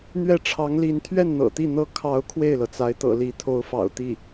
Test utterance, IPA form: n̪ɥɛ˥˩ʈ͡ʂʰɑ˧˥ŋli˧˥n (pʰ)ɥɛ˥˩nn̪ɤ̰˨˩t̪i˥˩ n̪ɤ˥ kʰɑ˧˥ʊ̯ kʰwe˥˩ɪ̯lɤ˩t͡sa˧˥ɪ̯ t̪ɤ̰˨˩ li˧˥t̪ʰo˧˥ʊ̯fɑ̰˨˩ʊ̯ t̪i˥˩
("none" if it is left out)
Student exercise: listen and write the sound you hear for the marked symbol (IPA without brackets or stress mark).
t̪ʰ